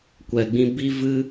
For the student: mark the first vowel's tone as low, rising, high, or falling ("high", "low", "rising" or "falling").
low